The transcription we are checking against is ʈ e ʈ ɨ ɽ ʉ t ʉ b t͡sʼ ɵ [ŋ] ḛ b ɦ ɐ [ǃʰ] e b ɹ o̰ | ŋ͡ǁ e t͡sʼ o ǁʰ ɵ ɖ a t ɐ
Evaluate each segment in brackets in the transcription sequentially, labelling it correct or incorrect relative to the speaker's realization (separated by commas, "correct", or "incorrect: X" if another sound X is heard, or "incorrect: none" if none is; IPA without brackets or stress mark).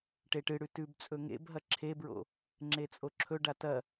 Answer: correct, incorrect: ǁʰ